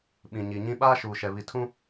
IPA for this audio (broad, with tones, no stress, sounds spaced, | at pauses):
ɓ ĩ˨ ɲ i˨ ɲ ĩ˦ ɓ aː˦ ʃ uː˨ ʃ ɛ˨ β i˨ tʰ ũ˦